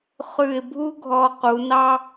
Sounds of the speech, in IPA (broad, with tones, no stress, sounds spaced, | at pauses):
χ ʉ˧˩ ɪ̯ bʱ u˥ ɡʱ ɔ˧˩ q u˩˧ n ɑ˥